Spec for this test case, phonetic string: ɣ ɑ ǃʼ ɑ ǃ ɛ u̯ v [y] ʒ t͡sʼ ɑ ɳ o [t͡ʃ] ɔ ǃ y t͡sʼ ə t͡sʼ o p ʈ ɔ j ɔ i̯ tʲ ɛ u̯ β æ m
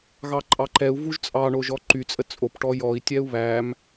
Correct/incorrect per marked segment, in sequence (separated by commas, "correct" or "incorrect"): incorrect, incorrect